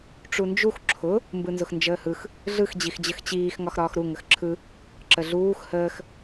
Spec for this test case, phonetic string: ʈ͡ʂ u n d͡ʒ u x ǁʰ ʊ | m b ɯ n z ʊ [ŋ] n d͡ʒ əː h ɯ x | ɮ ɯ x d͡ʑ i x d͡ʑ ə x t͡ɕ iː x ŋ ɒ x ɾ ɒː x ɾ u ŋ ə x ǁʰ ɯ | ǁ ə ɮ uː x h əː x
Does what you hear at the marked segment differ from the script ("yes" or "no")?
yes